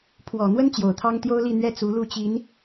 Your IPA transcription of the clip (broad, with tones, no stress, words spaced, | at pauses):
pʰwɔ˨˩ n̪wə˥n t͡ɕjo˨˩ʊ̯t̪ʰɑ˥ŋ t̪jo˥ʊ̯li˥˩n̪ɥɛ˥ t͡su˧˥lu˥˩t͡ɕi˧˥n